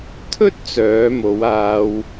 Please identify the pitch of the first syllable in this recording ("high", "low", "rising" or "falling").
high